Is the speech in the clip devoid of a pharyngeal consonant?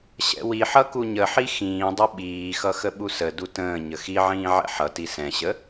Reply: no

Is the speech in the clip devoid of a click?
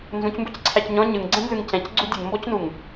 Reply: no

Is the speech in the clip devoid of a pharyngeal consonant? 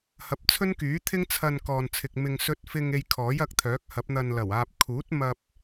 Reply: yes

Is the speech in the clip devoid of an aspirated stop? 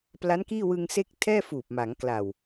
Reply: no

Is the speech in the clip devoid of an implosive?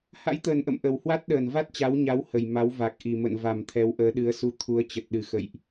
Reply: no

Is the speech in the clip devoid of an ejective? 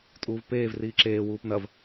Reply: no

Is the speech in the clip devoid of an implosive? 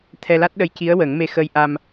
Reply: no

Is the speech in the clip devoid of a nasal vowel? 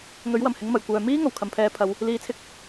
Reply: yes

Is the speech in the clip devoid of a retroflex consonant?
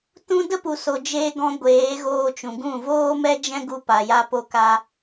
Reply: yes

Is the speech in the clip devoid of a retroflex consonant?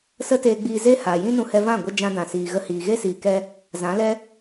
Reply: yes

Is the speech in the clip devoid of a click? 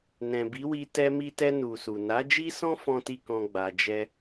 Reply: yes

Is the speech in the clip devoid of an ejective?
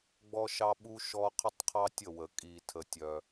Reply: no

